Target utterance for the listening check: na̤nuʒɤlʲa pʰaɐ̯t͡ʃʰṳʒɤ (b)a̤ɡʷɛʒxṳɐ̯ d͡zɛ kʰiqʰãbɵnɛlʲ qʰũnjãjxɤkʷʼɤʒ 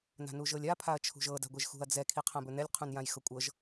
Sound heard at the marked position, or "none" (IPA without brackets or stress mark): d